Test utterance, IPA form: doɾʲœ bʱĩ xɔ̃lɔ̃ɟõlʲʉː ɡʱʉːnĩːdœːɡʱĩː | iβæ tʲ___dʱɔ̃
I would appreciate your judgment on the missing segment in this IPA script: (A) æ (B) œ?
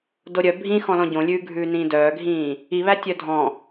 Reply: B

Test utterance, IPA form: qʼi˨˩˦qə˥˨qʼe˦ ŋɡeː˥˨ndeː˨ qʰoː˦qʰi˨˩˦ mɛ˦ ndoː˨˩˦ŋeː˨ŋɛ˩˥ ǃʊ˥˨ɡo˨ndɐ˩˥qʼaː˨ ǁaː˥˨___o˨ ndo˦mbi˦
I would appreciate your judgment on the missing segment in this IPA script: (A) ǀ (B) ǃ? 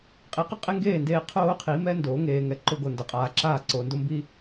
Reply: A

